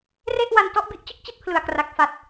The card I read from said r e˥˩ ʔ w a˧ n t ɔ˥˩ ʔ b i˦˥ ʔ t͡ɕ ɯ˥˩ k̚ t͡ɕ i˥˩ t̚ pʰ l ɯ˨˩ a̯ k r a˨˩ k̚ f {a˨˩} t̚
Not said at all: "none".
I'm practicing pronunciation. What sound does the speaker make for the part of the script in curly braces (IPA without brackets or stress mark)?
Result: a˨˩